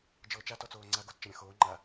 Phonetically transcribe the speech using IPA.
d͡ʒ ɤː t͡ʃ a t ɔ t͡s oː ŋ͡ǀ a ɡ o t t͡ʃ ɐ ɾʲ ɐ̃ x oː ŋ͡ǃ a

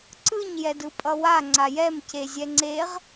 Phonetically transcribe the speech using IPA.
ǀ ɯ ɲ j ɛ d ɯ pʼ ʌ w a ŋ͡ǀ a j ɛ m c e zʲ ɛ ŋ͡ǀ e ʁ

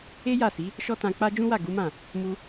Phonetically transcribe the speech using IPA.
e˦ j a˦˨ s i˨˦ | ʃ ɔ˦ t ã˧ k͡p a˦ d͡ʒ ũ˦ w a˦˨ ɡ u˨˦ m ã˦˨ | m u˧

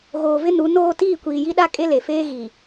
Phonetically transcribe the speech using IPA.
ɣ oː˨ v ɪ˦ n u˨˦ n oː˦ t iː˦˨ kʷ iː˨ j i˦ ɗ a˦ kʼ e˦ l e˨ f eː˦ ɣ i˨

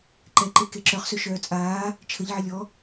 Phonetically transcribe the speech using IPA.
ǃ ɛ ǃ e k e ǁ œ χ s ø ʃ œː t͡sʼ aː | t͡ʃʰ ə ʎ ʕ ə lʲ ɔ

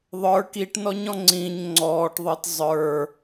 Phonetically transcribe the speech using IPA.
ðˤ ə˞ k i ʈ n ɔ ɲ ɔ̃ ŋ͡ǀ ĩ ɲ ŋ͡ǀ ɔː ʈ ðˤ ɪː t zˤ ə˞

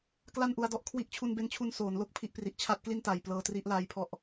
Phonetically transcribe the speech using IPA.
k l a˥˩ n ʔ u˧ a̯ d ɔ˦˥ ʔ kʰ w i˦˥ ʔ t͡ɕʰ u˧ n b e˧ n t͡ɕʰ u˧ n s oː˩˦ n l o˥˩ k̚ pʰ i˦˥ ʔ p r i˨˩ ʔ t͡ɕʰ a˦˥ t̚ k l i˥˩ n t a˨˩ j p l ɤː˧ t r i˦˥ ʔ l aː˦˥ j pʰ ɔ˦˥ ʔ

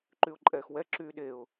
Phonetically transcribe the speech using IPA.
ǃ y ʊ̯ ǃʼ ɛː x w ɛ ǁ yː ɗ e ʊ̯

